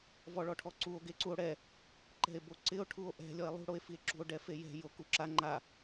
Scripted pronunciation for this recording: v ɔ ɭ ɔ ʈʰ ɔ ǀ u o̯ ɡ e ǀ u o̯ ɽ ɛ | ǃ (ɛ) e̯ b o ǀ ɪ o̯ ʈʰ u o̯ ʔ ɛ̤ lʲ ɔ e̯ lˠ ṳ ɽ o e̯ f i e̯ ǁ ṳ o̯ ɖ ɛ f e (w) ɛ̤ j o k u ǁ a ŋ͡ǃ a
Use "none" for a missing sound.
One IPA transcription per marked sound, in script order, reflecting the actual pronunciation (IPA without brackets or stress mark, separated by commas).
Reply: ɛ̤, j